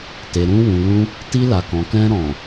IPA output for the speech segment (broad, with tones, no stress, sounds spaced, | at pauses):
t e˨ ɾ ũ˧ w ũ˨ l ũ˧ | t i˧ l a˨ k ɔ̃˨ k ɛ̃˧ ɾ ɔ̃˨